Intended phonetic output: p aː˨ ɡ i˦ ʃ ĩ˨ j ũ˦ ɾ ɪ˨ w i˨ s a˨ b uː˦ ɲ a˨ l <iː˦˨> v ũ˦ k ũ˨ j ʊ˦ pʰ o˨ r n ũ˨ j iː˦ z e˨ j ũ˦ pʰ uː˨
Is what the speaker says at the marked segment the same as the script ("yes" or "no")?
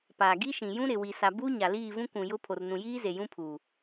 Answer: yes